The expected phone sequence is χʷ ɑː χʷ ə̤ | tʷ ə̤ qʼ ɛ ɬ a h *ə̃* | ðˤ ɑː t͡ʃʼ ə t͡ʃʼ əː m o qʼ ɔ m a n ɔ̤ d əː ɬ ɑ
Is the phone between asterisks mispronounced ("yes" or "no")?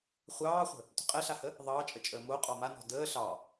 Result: yes